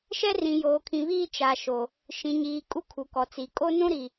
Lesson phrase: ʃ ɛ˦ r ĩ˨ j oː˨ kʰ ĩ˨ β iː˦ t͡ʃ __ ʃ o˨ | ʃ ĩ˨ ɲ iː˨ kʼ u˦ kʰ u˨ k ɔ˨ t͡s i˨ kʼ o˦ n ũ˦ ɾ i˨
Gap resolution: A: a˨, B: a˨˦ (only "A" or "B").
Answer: A